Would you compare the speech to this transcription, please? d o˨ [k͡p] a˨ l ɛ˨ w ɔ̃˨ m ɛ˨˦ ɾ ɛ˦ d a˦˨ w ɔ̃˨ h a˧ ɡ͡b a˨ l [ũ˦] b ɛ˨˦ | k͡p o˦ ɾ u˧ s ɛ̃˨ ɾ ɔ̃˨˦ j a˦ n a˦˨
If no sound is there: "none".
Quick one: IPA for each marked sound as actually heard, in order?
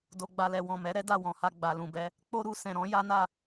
ɡ͡b, ũ˨

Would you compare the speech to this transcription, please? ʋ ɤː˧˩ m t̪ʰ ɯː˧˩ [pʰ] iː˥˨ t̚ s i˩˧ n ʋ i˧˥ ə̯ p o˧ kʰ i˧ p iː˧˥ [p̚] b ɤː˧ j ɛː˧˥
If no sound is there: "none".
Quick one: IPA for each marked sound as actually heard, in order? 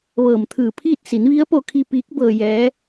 pʰ, k̚

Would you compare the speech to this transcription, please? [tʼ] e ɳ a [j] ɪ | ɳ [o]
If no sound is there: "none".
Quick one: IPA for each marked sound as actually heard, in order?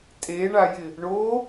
tʼ, j, o

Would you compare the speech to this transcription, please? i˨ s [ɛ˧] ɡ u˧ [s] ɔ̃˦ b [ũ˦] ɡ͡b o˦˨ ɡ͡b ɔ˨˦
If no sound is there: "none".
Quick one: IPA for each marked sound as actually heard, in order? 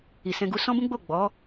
ɛ̃˧, s, ũ˦

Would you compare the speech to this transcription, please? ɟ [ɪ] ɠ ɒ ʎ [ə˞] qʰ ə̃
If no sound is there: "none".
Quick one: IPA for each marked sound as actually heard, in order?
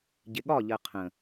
ɪ, ɜ

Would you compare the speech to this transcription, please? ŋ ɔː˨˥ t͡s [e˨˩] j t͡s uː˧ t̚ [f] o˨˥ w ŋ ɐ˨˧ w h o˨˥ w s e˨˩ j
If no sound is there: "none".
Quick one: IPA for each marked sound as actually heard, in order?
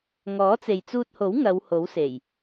e˨, h

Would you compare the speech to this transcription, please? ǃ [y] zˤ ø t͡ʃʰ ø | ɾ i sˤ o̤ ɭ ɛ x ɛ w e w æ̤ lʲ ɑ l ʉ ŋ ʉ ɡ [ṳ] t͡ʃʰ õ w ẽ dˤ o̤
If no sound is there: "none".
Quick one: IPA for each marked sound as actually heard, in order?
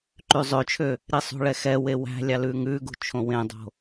y, ṳ

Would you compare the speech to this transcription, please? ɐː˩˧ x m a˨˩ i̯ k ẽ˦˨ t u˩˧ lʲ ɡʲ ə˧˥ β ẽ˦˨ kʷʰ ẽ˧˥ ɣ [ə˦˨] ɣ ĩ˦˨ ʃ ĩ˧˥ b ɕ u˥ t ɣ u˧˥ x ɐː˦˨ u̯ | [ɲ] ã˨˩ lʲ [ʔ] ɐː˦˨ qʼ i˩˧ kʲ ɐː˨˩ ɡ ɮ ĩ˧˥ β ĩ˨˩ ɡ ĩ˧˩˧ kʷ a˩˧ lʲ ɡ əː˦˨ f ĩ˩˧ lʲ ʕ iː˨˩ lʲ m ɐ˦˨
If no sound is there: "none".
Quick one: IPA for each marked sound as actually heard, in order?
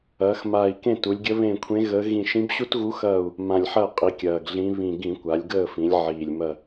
ə˧˥, m, ħ

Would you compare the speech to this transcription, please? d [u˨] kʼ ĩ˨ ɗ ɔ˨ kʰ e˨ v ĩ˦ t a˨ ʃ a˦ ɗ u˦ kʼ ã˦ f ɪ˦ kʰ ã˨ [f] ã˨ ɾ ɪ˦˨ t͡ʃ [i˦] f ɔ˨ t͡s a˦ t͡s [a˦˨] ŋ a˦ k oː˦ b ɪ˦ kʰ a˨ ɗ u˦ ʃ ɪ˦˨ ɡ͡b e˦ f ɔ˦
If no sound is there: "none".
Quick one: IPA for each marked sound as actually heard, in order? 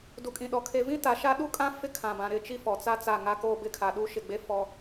u˨, b, i˦, a˦˨

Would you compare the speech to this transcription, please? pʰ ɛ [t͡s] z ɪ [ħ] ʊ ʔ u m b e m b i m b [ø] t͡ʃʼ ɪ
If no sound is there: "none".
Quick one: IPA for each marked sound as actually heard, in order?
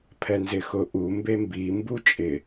n, x, u

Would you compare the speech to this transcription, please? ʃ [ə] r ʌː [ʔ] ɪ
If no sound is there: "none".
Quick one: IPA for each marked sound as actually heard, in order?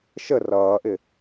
ə, ʔ

